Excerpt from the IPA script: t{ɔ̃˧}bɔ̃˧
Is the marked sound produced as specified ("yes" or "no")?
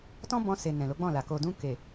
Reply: no